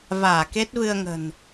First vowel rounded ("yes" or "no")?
no